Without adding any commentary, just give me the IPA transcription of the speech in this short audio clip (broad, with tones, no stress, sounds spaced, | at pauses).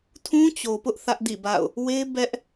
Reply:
tʰ ũ˦ t͡ɕ o˨ p ʊ˦ ʔ θ ä˦ ʔ d ḭ˦˨ b a̰˦˨ ʊ̯ | w e˦ b ɛ˦ ʔ